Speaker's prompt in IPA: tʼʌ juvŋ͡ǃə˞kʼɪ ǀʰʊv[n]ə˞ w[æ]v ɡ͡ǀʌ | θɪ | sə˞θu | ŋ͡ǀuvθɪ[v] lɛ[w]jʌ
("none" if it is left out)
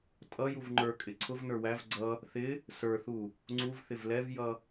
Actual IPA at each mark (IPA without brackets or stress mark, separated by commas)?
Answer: n, æ, v, v